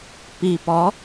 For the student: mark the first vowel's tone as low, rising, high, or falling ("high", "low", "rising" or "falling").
low